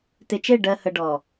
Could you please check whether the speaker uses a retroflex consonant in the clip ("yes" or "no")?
yes